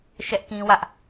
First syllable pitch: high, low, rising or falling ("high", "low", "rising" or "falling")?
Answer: high